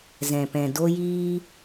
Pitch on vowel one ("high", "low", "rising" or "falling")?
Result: low